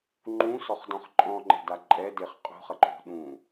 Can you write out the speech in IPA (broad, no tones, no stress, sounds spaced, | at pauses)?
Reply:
ŋ͡ǃ ũ s ɔ χ d ɔ̃ χ ǃʼ ɔ̃ ŋ͡ǃ ɛ̤ d a ǃʼ ɛ d e χ qʼ ṳ χ ɐ ǃʰ ṳ ɗ ũ